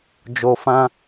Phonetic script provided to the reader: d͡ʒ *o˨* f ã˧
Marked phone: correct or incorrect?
correct